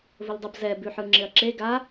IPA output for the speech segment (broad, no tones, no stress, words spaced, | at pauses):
vəldˤəb zɛ bʉħɯŋ͡ǁɪɐ̯ǁe ɡa